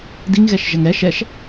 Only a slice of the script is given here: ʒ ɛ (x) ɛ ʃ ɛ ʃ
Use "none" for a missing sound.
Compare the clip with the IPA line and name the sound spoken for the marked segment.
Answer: ŋ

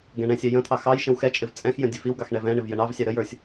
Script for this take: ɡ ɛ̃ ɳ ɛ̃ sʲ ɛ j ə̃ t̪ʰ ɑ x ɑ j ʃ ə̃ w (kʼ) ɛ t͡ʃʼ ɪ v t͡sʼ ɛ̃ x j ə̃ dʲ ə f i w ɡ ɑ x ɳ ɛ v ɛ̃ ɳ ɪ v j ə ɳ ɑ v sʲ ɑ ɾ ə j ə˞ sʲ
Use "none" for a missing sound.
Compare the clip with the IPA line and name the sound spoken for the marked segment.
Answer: x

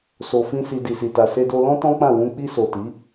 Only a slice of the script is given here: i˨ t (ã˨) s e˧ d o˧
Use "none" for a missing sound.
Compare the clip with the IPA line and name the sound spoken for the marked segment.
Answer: a˨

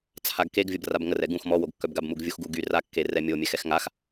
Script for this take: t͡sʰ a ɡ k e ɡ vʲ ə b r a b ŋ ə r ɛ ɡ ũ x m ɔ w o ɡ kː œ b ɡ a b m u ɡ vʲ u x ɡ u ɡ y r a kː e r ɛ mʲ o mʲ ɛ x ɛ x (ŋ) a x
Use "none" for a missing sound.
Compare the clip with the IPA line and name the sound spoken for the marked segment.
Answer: ŋ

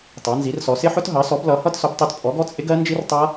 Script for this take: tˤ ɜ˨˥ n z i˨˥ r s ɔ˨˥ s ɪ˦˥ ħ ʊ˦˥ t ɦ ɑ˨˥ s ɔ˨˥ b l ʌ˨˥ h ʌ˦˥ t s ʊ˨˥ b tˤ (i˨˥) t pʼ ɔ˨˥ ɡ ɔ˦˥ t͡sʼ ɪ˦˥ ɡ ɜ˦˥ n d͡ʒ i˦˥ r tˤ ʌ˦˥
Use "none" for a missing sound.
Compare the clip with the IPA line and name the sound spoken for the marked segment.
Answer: i˨˥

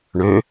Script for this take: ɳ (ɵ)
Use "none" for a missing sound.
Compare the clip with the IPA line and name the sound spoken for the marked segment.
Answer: ø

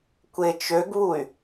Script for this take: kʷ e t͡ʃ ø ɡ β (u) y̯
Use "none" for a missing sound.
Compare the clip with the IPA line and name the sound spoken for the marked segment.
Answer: u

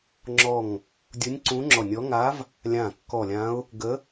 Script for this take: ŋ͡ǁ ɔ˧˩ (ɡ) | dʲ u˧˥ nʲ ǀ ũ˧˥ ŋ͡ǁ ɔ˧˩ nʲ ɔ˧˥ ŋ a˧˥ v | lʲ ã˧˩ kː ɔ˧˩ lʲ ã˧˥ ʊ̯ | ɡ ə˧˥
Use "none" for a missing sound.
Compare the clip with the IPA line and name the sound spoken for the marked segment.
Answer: ŋ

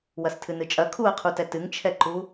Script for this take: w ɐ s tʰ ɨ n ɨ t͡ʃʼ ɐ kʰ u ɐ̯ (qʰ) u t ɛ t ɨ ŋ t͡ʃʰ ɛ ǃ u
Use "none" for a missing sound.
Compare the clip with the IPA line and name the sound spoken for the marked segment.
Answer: qʰ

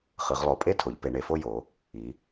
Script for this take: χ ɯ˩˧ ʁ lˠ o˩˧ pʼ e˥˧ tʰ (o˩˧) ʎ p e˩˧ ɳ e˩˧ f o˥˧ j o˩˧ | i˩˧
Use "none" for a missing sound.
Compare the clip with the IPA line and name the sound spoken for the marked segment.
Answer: o˩˧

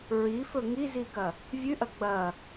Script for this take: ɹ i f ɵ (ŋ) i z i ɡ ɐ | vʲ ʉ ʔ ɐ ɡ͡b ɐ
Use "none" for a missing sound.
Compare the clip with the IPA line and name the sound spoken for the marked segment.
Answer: ŋ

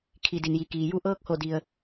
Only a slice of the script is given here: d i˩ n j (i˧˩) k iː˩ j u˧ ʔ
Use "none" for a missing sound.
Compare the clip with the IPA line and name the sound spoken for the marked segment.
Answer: i˩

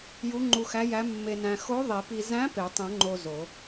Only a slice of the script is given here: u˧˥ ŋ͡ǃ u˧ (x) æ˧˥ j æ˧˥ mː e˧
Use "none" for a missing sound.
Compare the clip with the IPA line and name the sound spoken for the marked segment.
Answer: x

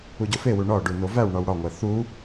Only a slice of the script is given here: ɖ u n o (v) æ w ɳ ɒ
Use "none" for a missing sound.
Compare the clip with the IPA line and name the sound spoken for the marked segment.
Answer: v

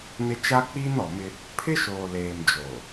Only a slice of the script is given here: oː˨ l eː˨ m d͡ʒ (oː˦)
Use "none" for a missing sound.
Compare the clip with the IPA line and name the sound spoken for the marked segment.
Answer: oː˨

